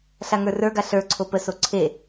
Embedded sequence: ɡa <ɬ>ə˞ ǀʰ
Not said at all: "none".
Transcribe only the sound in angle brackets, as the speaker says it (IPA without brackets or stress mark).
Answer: ɬ